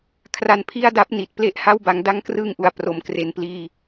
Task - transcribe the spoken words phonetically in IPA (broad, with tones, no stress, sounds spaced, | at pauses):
kʰ r a˧ n pʰ i˥˩ a̯ d a˦˥ p̚ n i˨˩ t̚ p l e˥˩ ʔ h a˥˩ w b a˧ ŋ d a˦˥ ŋ k r ɯː˧ ŋ ʔ u˨˩ a̯ p r o˩˦ m k r e˨˩ n p l iː˧